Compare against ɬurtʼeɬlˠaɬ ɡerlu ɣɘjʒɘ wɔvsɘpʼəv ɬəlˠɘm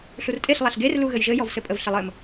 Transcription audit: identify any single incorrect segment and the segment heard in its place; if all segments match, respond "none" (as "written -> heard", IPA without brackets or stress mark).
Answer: w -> j